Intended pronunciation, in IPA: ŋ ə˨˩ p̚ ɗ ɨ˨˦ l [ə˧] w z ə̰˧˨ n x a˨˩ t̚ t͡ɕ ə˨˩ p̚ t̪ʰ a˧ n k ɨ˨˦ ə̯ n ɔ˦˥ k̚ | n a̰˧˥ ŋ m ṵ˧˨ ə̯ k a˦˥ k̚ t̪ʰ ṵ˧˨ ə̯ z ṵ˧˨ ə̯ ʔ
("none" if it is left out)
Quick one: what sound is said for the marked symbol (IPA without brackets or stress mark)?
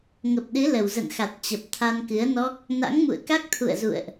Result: ə˨˩